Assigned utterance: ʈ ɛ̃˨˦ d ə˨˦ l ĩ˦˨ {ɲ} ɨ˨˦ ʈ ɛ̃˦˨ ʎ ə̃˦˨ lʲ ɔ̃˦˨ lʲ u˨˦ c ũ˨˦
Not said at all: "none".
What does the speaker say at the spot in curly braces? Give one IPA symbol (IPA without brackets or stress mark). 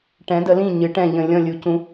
ɲ